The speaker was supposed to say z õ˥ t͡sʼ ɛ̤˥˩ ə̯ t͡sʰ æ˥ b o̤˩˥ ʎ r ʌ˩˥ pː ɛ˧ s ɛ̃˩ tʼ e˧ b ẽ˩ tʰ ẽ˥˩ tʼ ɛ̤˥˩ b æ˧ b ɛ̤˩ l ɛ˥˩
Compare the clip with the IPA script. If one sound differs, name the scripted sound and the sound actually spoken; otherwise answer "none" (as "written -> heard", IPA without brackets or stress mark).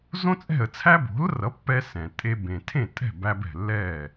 ʎ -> l